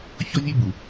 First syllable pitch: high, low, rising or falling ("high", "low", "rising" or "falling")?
high